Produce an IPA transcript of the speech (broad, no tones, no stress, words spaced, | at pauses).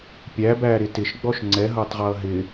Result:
pʲæbæːɾɪ tɪʃɡ͡bɔʃ ŋ͡ǀɛɦʌːtˤʁʌː ɦɪ